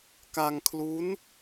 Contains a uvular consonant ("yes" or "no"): no